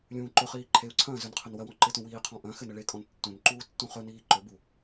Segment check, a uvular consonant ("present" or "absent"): present